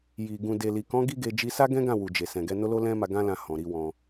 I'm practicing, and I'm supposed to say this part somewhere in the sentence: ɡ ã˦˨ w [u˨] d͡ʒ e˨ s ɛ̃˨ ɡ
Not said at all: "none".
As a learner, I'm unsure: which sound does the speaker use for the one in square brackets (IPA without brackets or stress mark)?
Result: u˨